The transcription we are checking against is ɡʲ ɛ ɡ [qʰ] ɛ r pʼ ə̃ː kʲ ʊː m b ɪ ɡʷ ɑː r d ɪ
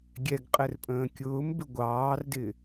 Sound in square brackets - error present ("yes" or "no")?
yes